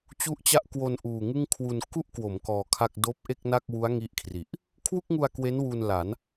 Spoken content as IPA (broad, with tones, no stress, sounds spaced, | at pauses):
t͡ɕ u˥˩ ʔ t͡ɕ a˥˩ ʔ k w o˧ n ʔ uː˨˩ ŋ ɯ˥˩ ŋ kʰ w u˧ n k u˥˩ ʔ k w o˩˦ m k ɔː˧ kʰ a˥˩ k̚ d oː˦˥ p̚ ʔ e˥˩ k̚ n a˥˩ k̚ w u˦˥ a̯ ŋ i˦˥ ʔ kʰ r i˨˩ ʔ | kʰ w u˥˩ k̚ ŋ u˧ a̯ k w e˦˥ n w u˧ n l a˩˦ n